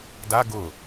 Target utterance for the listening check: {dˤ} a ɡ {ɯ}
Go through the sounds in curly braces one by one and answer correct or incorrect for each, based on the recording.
incorrect: d, incorrect: ʊ

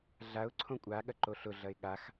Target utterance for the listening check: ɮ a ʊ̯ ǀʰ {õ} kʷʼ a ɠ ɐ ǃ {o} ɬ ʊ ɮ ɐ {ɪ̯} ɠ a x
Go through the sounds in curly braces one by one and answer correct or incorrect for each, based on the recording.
correct, correct, correct

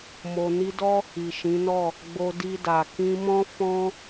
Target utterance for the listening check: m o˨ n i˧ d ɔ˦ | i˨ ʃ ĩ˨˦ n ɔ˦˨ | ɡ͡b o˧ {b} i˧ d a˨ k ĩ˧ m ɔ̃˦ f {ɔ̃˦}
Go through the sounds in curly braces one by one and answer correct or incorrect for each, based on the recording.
incorrect: d, correct

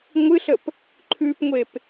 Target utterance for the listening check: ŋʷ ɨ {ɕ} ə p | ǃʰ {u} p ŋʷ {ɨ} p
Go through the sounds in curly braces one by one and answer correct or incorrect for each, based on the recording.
incorrect: ɬ, incorrect: ʉ, incorrect: e

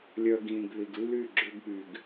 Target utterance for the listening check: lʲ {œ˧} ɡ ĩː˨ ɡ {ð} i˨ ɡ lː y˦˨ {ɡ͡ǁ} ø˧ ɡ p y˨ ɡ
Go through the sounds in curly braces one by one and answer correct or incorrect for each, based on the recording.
correct, correct, correct

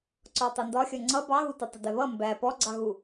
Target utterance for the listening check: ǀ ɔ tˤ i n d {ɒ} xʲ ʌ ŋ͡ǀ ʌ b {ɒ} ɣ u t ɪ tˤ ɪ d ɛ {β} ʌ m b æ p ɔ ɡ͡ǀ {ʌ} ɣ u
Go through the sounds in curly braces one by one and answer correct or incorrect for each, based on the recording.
correct, incorrect: ɑ, correct, incorrect: ɑ

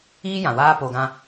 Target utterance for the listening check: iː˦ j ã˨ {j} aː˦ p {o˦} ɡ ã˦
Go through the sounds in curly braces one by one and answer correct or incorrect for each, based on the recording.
incorrect: w, incorrect: o˨

